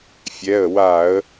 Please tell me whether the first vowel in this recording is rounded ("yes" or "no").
no